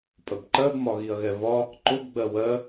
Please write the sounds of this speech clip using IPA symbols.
pʼəbǃɜb mɒɣiɐ̯ɣɛvɒ | ǃʊb ɡ͡bɜwɜ

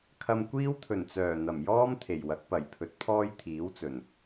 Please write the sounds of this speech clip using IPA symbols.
kʰɐ˧mkʷiː˥wt̪ʰɵ˨˩nt͡sœː˨˩ n̪ɐ˨˩mjɔː˥m t̪ʰe˨˩jwɐ˨˥k̚pɐ˨˩j pʰɵ˨˥t̚pʰɔː˥jt̪ʰiː˨˥wt͡sɵ˨˩n

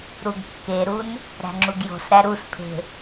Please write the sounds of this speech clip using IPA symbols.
ɾuɡkːeɾun | ɾæ̤ŋ͡ǁuɡjo̤sɾæ ɾuspʰe̤

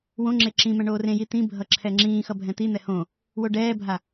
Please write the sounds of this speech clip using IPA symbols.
wõŋ͡ǁe ǁĩ mɛ̃ɳoːrẽji t̪ĩbʱʌ ǁʰɛŋ͡ǁĩːxʌ bʱɛ̃t̪in̪ɛ hõ | woɖɛːbʱa

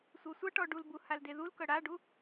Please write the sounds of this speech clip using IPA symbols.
sʷɤsʷʌʈɔ ɖulbu haldeðulkɤ ɽaɖu

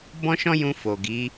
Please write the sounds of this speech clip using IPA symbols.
bɔ̃˦ʃɔ̃˦jũ˧ fo˨ɡi˨˦

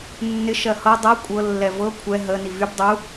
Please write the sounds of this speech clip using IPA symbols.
nːɪ ʃɜhɤ dˤɤ kʷʼɤlːɛ vɤ kʷʰɛ ɦə nivyb dˤu

